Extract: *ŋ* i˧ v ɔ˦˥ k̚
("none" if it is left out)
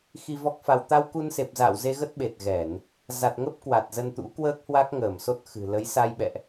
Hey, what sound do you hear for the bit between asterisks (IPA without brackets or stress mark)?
x